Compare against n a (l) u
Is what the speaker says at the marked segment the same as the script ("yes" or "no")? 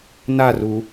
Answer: no